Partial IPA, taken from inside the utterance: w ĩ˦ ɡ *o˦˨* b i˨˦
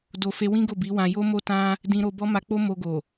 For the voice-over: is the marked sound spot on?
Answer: yes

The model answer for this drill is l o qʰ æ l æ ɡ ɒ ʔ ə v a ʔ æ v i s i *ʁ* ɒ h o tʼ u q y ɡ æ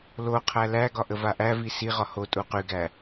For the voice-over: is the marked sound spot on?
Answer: yes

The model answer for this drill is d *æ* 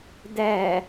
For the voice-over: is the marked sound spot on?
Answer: yes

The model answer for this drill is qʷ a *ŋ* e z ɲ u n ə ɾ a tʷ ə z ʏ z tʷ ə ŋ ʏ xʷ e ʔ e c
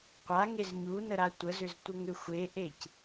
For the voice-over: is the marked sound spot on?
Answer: yes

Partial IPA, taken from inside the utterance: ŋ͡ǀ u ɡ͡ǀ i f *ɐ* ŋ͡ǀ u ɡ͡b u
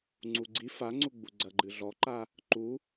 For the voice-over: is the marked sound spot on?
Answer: no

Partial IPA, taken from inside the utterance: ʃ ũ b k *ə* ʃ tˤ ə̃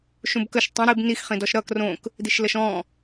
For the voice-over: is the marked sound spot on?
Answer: yes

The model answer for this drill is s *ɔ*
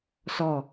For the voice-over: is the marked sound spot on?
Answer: yes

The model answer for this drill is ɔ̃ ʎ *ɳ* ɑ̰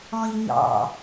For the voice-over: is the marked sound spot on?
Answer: no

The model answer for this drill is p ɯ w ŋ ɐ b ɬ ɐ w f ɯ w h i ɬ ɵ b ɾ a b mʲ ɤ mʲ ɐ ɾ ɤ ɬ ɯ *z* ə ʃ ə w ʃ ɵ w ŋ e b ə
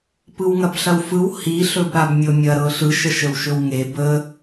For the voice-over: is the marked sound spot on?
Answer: no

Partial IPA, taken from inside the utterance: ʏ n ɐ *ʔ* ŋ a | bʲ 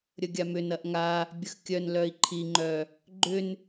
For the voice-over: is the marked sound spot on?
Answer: yes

